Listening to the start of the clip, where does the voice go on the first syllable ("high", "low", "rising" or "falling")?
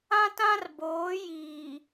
high